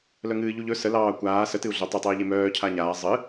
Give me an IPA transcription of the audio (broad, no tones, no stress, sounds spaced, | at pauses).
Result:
l œ ŋ ɨː ʎ u ʎ ɵ s ə l ɑː kʷ aː s ə t ɨ u̯ ɮ ɵ tˤ ə tˤ ɨː ʎ e m œː cʰ a ɲ aː zˤ ɨ